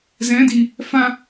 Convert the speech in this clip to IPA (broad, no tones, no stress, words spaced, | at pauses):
zɛ̃di | fã